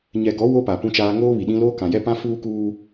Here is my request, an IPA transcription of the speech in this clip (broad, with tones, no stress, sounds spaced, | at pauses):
ɲ ɛ˨ ɡ ɔ˨˦ w o˦ p a˨ p ũ˦ t͡ʃ aː˦ ŋ oː˦ β i˨ ɗ ĩ˦ l oː˦ k ã˨ j ɛ˦ p ã˦ f uː˦ k uː˦